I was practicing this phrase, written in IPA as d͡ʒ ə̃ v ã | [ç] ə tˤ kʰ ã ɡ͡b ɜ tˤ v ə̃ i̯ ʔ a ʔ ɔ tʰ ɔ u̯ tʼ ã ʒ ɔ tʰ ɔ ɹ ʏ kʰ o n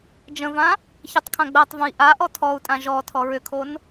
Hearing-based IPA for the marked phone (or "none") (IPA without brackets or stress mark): ç